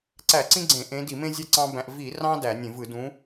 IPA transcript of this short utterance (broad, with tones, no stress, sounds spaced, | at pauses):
ǀ æ˧˩˧ ǀ ĩ˦ ɡ͡ǀ ẽ˧˩˧ ʔ ẽ˨˦ d i˧˩˧ m ẽ˦ zʲ æ˦ ǀ ɑ̃˦ b æ̃˦ ʔ v i˧˩˧ r ɑ̃˦ d æ˧˩˧ nʲ ẽ˧˩˧ v ɯ˧˩˧ d ũ˨˦